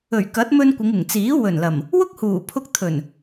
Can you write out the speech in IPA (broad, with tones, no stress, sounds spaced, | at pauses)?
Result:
ɵ˨˩ ɥ k ɐ˨˥ t̚ m ɵ˧ n kʷ ɪ˨˧ ŋ ɪ˨˩ ŋ t͡s iː˨˥ w ɵ˨˩ n l ɐ˨˩ m | w ʊ˥ k̚ h uː˨˩ pʰ ʊ˧ k̚ t̪ʰ ɵ˨˩ n